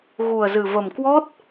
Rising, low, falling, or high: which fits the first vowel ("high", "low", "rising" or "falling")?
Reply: low